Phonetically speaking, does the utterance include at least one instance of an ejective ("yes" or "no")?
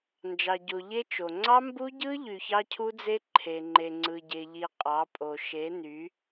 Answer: yes